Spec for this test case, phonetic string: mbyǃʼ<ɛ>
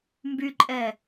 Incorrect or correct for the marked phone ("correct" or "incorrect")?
correct